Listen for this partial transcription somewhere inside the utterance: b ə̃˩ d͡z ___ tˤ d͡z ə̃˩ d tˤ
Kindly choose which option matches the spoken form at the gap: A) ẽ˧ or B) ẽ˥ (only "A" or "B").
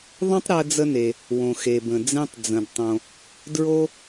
A